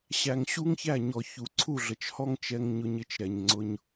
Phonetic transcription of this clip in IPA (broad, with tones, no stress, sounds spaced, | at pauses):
ɕ æ˨ ŋ ɕ u˦ ŋ ç æ˦˨ ɲ ɔ˨ ç u˨ ǀʰ u˦˨ ɮ ə˨ t͡ʃ h ɔ˦ ŋ t͡ʃ ɛ˧ ŋ ɲ ʊ˧ ɲ ɪ˧ t͡ʃ ɾ ɛ˨ ɲ ŋ͡ǀ ʊ˧ ɲ